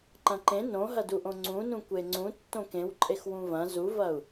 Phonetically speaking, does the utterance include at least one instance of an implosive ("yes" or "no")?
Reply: no